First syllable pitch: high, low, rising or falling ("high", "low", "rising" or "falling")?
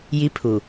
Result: high